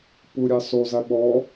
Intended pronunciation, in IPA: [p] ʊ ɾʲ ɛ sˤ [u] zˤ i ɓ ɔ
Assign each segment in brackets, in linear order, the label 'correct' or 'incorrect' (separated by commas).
correct, correct